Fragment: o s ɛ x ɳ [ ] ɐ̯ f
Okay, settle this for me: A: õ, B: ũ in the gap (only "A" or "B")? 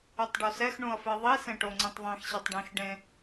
B